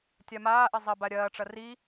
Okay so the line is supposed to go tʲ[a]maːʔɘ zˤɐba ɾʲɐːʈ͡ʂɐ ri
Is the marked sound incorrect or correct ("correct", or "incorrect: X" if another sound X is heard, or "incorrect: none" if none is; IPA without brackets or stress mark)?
correct